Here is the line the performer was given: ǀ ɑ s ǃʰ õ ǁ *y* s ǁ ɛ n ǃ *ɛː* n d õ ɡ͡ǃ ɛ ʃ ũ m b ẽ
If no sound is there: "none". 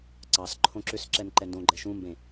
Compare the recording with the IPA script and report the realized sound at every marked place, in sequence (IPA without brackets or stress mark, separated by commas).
ʏ, ɛ